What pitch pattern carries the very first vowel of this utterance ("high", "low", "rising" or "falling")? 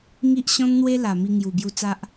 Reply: high